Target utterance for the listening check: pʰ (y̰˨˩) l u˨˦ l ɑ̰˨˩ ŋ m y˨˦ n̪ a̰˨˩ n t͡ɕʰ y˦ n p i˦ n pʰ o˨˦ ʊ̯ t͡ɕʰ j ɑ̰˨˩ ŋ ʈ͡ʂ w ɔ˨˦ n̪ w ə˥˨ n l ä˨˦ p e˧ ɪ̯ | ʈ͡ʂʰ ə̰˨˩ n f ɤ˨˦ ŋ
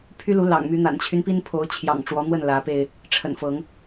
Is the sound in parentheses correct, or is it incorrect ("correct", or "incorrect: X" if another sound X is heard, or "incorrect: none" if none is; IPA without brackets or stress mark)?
incorrect: y˦